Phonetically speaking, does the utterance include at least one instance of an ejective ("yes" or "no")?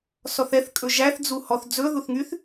yes